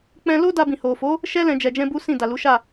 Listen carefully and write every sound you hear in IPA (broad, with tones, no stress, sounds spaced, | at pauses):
k͡p ɛ̃˧ l o˦ d a˧ b ĩ˨ h o˨ f o˨˦ | ʃ ɛ˦ l ɛ̃˧ d͡ʒ ɛ˧ d͡ʒ ɛ̃˦ b u˦ s ĩ˦˨ d a˨ l u˨˦ ʃ a˦˨